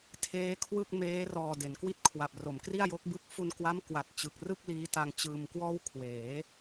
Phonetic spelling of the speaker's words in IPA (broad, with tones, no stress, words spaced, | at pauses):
tʰeː˦˥kʰwɯ˥˩k̚ meː˦˥rɔː˨˩ de˩˦nkwi˦˥t̚kʰwa˨˩p̚ro˩˦m kri˥˩a̯jo˦˥k̚ bɯ˥˩k̚ fu˧nkwa˦˥mkwa˨˩t̚ t͡ɕɯ˨˩k̚rɯ˥˩k̚ liː˦˥ta˧ŋt͡ɕɯː˧mkwɔː˥˩w kʰweː˩˦